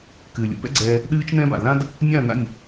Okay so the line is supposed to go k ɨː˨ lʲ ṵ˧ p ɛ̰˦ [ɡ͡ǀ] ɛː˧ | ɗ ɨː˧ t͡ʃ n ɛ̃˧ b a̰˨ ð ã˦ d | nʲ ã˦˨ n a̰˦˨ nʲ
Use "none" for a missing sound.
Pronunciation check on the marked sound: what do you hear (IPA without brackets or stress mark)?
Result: ɡ͡ǀ